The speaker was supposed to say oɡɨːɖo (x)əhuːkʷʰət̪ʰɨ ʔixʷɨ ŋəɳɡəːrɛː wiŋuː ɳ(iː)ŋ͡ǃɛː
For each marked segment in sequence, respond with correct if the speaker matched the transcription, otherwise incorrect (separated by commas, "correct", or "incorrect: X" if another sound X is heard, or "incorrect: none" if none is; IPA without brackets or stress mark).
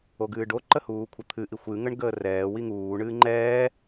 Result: incorrect: ǃ, incorrect: ɨː